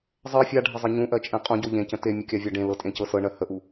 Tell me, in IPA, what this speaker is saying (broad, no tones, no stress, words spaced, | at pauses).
zˤɜ fʲaɖʱəzˤɤ ɲũʔɜt͡ʃʼẽ qʼũɟo ʎẽcə̃ temʲɯkʲavʲa ɖẽlɤtʼẽcɤ sɤɳɜ həʔu